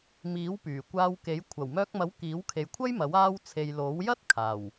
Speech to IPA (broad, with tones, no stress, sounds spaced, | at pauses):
m iː˨˥ w p yː˨˩ kʷ aː˧ w k e˨˥ j kʷʰ ɐ˨˩ w m œː˧ k̚ m ɐ˨˥ w k iː˨˥ w kʰ e˨˧ j kʷʰ ɐ˥ j m ɐ˨˥ w aː˥ w t͡sʰ e˧ j l o˨˥ w j ɐ˥ t̚ kʰ aː˨˩ w